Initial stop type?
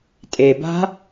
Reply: ejective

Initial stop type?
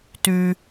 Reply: plain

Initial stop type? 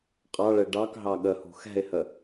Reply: ejective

